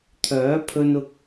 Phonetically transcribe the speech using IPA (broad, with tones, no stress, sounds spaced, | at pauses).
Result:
t̪ʰ œː˨˥ pʰ ɵ˧ n ʊ˧ k̚